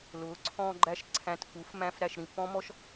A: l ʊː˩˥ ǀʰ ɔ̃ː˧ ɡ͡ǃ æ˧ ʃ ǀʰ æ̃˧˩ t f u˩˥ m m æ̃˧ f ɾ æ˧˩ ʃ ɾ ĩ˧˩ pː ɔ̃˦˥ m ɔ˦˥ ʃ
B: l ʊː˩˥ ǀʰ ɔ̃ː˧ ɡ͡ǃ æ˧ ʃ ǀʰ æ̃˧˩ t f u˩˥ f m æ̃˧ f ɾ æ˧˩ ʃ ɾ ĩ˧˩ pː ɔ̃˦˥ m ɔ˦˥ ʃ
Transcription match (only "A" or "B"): B